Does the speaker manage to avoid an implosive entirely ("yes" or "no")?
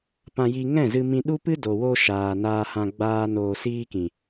no